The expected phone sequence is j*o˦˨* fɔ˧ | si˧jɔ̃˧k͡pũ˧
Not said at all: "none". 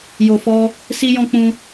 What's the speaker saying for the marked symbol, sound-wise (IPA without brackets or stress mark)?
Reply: o˨